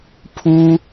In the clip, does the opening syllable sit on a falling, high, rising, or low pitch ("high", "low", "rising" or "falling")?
high